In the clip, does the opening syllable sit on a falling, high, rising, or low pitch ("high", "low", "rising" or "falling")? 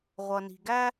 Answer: low